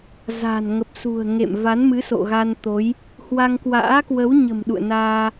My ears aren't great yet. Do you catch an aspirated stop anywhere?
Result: no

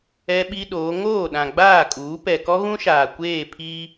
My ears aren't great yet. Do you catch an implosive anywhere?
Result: yes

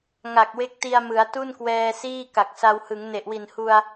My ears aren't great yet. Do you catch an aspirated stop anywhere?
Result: no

